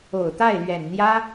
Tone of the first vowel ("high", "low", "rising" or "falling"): low